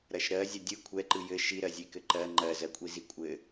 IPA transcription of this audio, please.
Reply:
ɾ ɐ ʃ ɾ ɜ zʲ ɘ dʲ ɯ kʷʰ ɛ ǃ ɯ j ɘ ʃ i ɾ ɜ zʲ e k ɘ ǃ ɜ ŋ͡ǃ ɜ z ɜ kʷʼ i z i kʷʼ ɘ

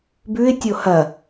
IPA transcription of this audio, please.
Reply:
b ʉ ɪ̯ tʲ o h ɐ

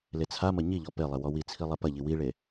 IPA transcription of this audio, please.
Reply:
l e t͡sʰ a m ɐ ɲ i ʎ ɔ p e lˠ e w ɔ w i t͡sʰ i lˠ ɛ p ɐ ʎ i w i ɭ e

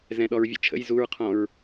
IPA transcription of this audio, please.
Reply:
z ɛ̃ ɗ ɔ ɹ vʲ ə̰ t͡ʃʰ ə̰ j z u ɹ qʰ ɔ̃ ɹ

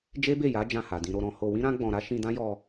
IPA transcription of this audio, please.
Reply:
d͡ʒ e˦ b e˦˨ j a˨˦ d͡ʒ ã˦˨ h a˨ d ĩ˧ ɾ o˧ ɾ ɔ̃˧ h o˧ w ĩ˦ ɾ ã˦ ɡ͡b ɔ̃˧ ɾ a˦ ʃ ĩ˧ d ã˦ j ɔ˧

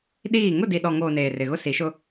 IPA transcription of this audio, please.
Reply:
ɗ iː˦˨ ŋ ʊ˦˨ d i˨ ɗ ɔ˨ ŋ oː˨ n eː˨ r ɪ˨ ɣ ʊ˦ s i˨˦ ʃ ʊ˦

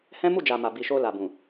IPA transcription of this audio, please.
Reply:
h ɛ̃˦ m u˦˨ d͡ʒ a˨ m a˨ b i˨ ʃ o˧ l a˨ b ũ˨

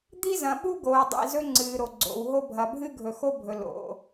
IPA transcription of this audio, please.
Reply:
d̪ i˥ z ɐ̃˨ ɓ u˥ ɡ oː˨ dˤ ḭ˨ z ɵ˥ ŋ͡ǀ ɨː˨ ɾ o˩ ɡ͡ǀ o̰˩ w ɦ o˦ bʱ ɐ˨ bʱ ɨ˥ ɡʱ ɵ˨ x o˥ bʱ ɵ˩ l o̰˩

